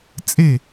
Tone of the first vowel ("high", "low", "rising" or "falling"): falling